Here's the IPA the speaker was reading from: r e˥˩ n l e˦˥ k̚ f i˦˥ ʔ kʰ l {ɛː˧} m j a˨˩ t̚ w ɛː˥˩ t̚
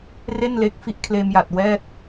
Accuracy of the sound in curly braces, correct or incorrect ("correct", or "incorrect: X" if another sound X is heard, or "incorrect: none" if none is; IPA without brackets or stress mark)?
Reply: incorrect: eː˧